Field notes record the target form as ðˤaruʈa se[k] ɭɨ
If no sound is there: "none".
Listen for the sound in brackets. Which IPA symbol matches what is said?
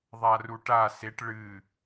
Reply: ʈ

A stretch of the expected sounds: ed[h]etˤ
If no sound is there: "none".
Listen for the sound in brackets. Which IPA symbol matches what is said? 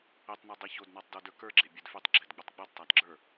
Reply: f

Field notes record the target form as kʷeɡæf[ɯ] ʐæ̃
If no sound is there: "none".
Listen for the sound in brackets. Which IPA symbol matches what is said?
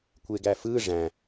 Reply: ɯ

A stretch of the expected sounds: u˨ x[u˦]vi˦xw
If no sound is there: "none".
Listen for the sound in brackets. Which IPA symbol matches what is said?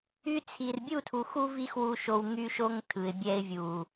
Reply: u˦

